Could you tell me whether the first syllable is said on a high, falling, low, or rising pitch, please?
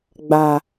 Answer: low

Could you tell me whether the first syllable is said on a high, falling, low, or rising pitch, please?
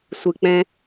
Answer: low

